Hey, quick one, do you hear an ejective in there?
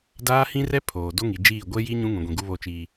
no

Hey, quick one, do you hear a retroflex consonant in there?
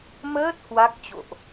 no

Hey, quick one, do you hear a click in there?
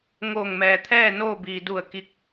no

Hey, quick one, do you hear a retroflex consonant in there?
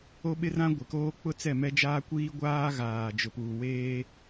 no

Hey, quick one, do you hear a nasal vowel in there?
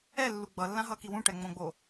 yes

